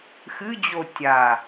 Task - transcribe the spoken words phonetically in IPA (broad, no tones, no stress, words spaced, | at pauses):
xɨd͡ʑo tʲa